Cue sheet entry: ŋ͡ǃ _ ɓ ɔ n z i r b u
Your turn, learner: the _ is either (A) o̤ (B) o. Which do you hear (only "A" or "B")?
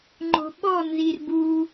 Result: A